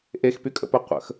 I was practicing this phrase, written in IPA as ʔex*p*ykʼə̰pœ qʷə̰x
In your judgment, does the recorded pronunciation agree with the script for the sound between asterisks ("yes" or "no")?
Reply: yes